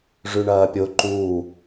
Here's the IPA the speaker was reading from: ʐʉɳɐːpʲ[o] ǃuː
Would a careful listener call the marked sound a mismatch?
no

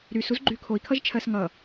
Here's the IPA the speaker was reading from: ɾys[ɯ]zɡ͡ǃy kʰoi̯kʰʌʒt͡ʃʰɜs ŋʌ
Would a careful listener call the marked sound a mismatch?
yes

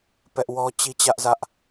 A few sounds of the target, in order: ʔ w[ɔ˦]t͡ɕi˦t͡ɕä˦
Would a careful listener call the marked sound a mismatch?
no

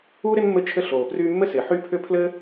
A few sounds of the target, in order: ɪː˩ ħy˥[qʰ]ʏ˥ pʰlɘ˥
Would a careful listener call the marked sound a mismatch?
yes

